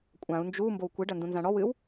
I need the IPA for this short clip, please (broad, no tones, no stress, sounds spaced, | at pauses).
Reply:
kʷʼ ã u̯ n d͡ʒ u m b o w kʷ i ɖ ɐ n d ũ n z ã ɽ ɔ w ɨ w